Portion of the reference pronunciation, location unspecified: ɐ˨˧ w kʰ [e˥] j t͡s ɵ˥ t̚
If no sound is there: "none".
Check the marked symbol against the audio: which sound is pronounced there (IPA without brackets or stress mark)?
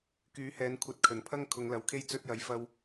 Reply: e˥